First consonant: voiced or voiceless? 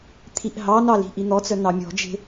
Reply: voiceless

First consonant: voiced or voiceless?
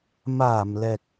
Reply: voiced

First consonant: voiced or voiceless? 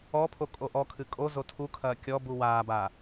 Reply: voiceless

